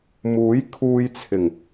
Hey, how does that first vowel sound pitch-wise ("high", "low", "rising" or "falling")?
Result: rising